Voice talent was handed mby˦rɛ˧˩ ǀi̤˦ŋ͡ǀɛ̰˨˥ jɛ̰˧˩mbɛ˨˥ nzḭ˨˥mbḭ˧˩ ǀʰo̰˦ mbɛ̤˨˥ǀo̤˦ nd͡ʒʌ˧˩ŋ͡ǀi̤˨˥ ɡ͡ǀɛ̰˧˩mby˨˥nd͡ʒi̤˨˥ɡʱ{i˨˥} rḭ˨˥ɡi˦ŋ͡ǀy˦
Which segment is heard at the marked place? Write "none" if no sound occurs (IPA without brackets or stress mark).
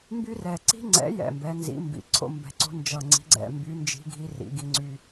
i˨˥